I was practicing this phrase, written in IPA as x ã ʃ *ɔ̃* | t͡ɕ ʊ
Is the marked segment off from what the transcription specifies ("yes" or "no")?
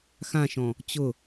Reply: no